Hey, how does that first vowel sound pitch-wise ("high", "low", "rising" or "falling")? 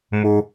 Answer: low